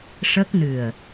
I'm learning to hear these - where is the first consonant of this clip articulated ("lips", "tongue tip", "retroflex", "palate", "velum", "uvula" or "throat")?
retroflex